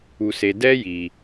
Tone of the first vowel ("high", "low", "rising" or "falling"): high